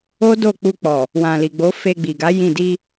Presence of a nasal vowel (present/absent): present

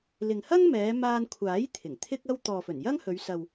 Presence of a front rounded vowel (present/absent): absent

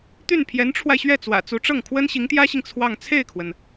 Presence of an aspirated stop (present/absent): present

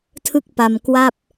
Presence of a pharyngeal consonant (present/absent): absent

